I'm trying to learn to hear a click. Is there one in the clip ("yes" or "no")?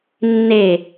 no